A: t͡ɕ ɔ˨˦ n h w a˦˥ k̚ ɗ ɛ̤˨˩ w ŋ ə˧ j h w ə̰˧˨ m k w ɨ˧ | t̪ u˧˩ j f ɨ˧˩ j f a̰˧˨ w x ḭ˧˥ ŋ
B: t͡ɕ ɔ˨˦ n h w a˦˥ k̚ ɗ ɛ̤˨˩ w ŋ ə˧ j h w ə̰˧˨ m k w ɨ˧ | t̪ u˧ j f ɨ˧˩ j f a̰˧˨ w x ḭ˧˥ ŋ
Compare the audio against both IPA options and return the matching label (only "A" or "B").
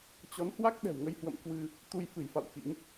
B